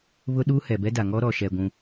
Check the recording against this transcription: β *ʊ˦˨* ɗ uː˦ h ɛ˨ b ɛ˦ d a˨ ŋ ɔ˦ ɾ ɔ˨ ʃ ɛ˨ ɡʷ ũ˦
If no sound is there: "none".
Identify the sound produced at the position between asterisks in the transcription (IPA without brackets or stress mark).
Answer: ʊ˦